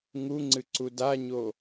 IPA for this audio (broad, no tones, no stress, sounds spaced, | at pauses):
ŋ u ŋ͡ǀ ɨ ǀ u d a ɲ o